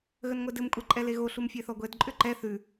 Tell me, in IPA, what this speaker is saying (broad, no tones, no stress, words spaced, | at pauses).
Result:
ɣənŋʷɛdɘmkʷʼɛ ǃʼɛleɣo ɬumfʲɛθɔɡʷɛd ǃʼʏǃɛ θʉ